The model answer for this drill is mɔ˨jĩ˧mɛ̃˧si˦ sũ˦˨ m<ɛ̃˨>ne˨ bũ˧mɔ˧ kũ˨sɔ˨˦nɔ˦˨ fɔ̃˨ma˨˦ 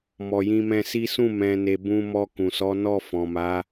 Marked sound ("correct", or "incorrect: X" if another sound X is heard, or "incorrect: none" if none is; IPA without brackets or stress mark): correct